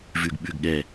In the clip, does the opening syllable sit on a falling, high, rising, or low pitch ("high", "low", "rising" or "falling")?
low